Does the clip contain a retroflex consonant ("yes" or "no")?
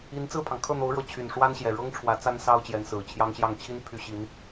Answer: yes